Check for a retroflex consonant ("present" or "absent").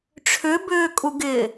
present